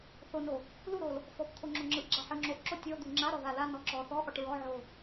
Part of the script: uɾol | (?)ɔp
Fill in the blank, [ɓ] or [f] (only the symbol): f